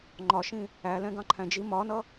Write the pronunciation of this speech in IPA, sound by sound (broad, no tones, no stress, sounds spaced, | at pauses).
ŋ͡ǃ ɒ ʃ ĩ | æ l ɛ̃ ɡ ɑ̃ ǃʰ æ̃ d͡ʒ i m ɒ n ʌ